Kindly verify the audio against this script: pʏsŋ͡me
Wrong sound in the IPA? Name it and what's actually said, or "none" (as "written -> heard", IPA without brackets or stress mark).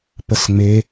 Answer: ʏ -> ə